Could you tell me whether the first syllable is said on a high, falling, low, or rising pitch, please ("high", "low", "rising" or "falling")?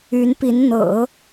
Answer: rising